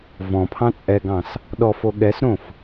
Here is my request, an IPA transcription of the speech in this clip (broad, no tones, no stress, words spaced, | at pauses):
vɔ̃pʰɑ̃ t͡sʼɛɡɑ̃s | ɗɔfo ɠɛsɾõf